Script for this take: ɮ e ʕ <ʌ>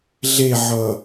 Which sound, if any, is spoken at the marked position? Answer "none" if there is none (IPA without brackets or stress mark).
ʌ